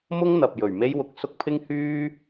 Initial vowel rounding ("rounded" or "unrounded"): rounded